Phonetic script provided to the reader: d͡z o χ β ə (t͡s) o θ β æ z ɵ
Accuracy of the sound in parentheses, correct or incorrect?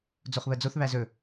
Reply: incorrect: d͡z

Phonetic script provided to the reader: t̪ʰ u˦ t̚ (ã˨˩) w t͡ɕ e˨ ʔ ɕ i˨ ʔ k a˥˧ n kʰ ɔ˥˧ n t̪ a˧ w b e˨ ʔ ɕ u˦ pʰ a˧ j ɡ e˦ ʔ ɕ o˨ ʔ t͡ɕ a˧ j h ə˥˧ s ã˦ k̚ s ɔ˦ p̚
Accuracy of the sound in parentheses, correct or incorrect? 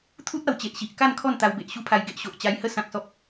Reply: incorrect: a˨˩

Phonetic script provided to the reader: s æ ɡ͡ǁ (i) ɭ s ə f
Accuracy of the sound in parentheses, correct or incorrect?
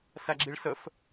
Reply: correct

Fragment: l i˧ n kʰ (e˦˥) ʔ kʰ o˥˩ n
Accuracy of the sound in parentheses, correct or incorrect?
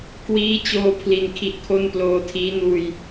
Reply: incorrect: i˦˥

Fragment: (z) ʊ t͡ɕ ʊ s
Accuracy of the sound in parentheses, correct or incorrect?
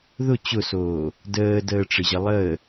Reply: incorrect: ð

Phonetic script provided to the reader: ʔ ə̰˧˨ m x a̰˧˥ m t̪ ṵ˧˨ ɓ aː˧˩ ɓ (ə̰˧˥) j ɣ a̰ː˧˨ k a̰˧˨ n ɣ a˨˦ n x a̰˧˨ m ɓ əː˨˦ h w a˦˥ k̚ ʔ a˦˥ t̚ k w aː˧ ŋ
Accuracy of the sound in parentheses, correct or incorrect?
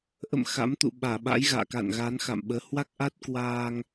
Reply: incorrect: a̰˧˥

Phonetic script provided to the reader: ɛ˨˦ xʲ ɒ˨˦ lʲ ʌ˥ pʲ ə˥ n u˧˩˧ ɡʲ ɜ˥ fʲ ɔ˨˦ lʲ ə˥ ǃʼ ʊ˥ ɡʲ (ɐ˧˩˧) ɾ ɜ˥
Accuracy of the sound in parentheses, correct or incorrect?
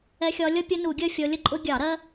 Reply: incorrect: ɑ˧˩˧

